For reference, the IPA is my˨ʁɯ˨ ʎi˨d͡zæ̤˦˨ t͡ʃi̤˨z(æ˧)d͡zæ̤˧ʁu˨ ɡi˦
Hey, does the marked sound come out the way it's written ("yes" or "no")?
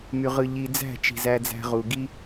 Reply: yes